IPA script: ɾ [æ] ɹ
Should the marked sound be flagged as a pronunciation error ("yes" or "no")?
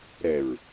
yes